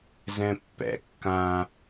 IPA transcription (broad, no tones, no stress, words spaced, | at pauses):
zɛ̃pːɛ̰ kːã